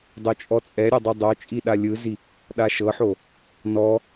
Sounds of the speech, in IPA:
dˤot͡ʃʼɔt͡sʼɛɾʲo dˤidˤot͡ʃʼi ɗalʲɯzi | ɗaʃɤħo | nɔ

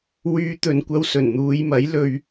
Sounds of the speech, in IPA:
wyː˨˧ t̪ɵ˨nkʷɐ˧wsɵ˨˩n n̪uː˨˧jmɐ˨˥j lɵ˧ɥ

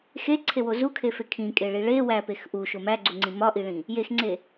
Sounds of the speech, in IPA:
xeǀʰewo zukʰefe kʰĩkʼeɭi ɭe wæpex ʔuʃo mæɡ͡ǀuŋ͡ǀĩ mɒʔiɭĩ | jexŋ͡ǀe

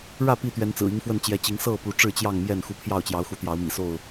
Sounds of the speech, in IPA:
ɻä˥˨ pi˥˨t̪ɥɛ˨˦nt͡sɹ̩˨˩ i˨˦ŋfwə˥˨nt͡ɕjɛ˨˦t͡ɕi˨˦ŋ sɤ˥˨ pu˨˦ʈ͡ʂɻ̩˥˨t͡ɕjɑ˥˨ŋmjɛ˥˨n xu˨˦pʰjɑ˥˨ʊ̯t͡ɕjɑ˨˦ʊ̯xu˨˦ t̪jɑ˨˦ʊ̯mḭ˨˩so˥˨ʊ̯

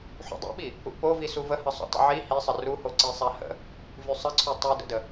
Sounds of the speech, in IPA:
ħṵdˤṵɓi | ṵpovi suvəhə sˤṵtˤə̰ʕi hisˤə ruho ǀisˤahə̰ | vysˤəǀʰy tˤydə̰də

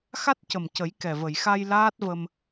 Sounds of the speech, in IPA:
xa˦˥t̚cə˨˩mcə˨˩˦j kɛ˨˩və˨˩˨jxa˧j laː˦˥t̚və˧m

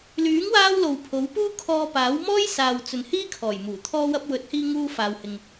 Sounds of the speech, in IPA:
lyː˨˥ŋwaː˧w lo˨wpʰo˨˥wpuː˥ kʰɔː˧ paː˨˥wmɔː˥j saː˨wt͡sɵ˨n hiː˥kʰɔː˨˩jmuː˨˩ t̪ʰɔː˧wɐ˧p̚wɵ˨˥t̚ hiː˧ŋuː˧ faː˧whɪ˧ŋ

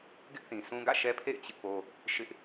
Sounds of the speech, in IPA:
ɡɪ˦ʔθĩ˨ sũ˦ɡä̰˦˨ ʃɛ˦pʰḛ˦˨ɪ̯ t͡ɕɪ˦ʔpo˦ | ʃɪ˦ʔ

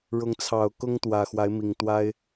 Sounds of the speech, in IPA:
ɻʊ˨˦ŋt͡sʰɑ˨˩ʊ̯ kʊ˦ŋ t̪wä˨˩xwa˨˦ɪ̯mi˨˩ŋt̪wa˦ɪ̯

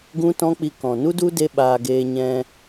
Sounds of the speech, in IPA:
ɡũ˦tɔ̃˦ k͡pi˧kɔ̃˨ nu˦du˦ de˦ɓaː˧ ɡeː˧ɲɛ̃˧

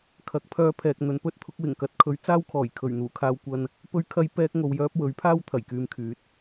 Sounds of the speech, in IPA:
kʰɐ˨˥k̚pʰœː˧pʰɛː˨k̚ n̪ɵ˨˧npɵ˥t̚t̪ʰʊ˨˥k̚ wɪ˨˩ŋkɐ˨˥t̚kʰɵ˨˥ɥ t͡saː˥wkʰɔː˨˩j kʰɵ˨˩ɥn̪uː˨˩kʰaː˧wkʷɐ˧n | pɵ˥ɥkʰɐ˥jpɛː˥k̚ ŋo˧wjœː˥p̚ wɵ˨˥ɥpʰaː˥w t̪ʰɐ˨˩jkyː˧mkʰyː˨˥t̚

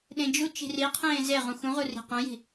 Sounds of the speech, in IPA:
ɗẽd͡ʒu t͡ʃi̤ri qʰẽːzeʁũ xũʁu ri̤qœ̃ji̤

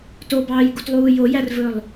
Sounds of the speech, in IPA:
tobɑːjɡutlˠuː jojærvɵlˠ

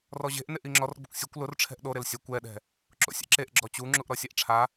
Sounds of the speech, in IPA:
rɔʑe̤ʔnɪʔ iŋ͡ǁɔrɡ͡bʊkʷ sʲʊkʷ lʊrʈ͡ʂʰɛ̤ʔ ɗo ɾɪlsʲakʷ ɛɗɛ̤ | ǁo̰sʲɛ̰ǁeʔ ɡ͡ǁɔt͡ɕu ŋ͡ǁuʔɾɔsʲaʔʈ͡ʂʰa

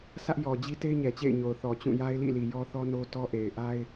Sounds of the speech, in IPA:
sä˦ʔjɔ˨d͡ʑi˦te˦ɪ̯ ɲɛ˨t͡ɕḛ˦˨ɪ̯ɲo˨ʊ̯ θɔ˨t͡ɕũ˦˨ja˦ɪ̯lḭ˦˨ li˨jɔ˦θɔ˦ no˦tɔ˦ ʔe˨ɪ̯ʔa˦ɪ̯

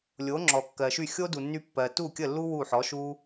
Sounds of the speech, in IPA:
lʲo˩˥ŋ͡ǁɔ˩kːɜ˩ʃy˥˩ xʲo˥du˩nːy˧pːɜ˩ tu˥˩kʲə˥˩lːu˥ wu˥˩ħɔ˩˥ʃu˥

